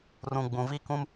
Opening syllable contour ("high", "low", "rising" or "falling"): low